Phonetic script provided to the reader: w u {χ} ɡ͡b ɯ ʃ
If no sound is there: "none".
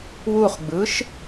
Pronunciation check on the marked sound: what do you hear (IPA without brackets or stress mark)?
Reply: χ